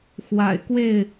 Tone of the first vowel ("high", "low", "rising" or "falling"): low